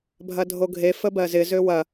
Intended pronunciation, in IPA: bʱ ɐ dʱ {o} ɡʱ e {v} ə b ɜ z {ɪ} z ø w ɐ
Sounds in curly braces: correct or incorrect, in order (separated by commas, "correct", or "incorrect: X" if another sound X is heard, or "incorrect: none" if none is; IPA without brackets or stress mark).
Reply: correct, incorrect: f, correct